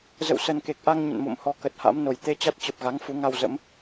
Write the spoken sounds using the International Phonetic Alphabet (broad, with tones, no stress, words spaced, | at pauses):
zə̰˧˨wsə˨˩nke˨˩k̚ʔa˧ŋ ɲə̰˧˨nmo̰˧˨mhɔ˨˦ kə˨˩t̚ha̰˧˥mno˨˩j t̪e˧t͡ɕa˦˥t̚t͡ɕə˨˩p̚ɣa˨˦ŋ fu˨˦ŋa˧wzə̰˧˥m